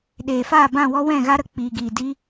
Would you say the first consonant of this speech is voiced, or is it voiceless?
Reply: voiced